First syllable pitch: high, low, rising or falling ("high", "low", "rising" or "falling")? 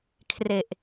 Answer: low